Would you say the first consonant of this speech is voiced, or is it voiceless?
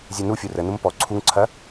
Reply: voiced